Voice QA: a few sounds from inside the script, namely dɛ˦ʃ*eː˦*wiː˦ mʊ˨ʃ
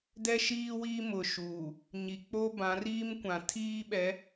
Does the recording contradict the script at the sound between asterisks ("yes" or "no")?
yes